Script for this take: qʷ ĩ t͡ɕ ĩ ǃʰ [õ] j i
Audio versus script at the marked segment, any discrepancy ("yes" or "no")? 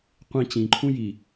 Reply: yes